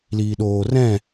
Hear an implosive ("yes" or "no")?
yes